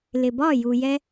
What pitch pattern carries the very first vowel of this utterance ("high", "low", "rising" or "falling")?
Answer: low